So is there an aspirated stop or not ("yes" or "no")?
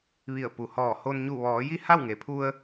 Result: yes